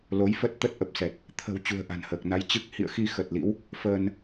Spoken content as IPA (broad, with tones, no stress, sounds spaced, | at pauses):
l o˨˦ j f ə˦˥ t̚ t̪ ə˦˥ t̚ ʔ ə˨˩ p̚ s ɛ˨˩ t̚ | t̪ʰ ə̤˨˩ w t͡ɕ ṳ˨˩ ə̯ ʔ a̤˨˩ n h əː˨˩ k̚ n a˧ j t͡ɕ ɨ˦˥ k̚ h ḭ˧˨ ə̯ x i˧ x ə˨˩ t̚ l ḭ˧˥ w | f əː˧ n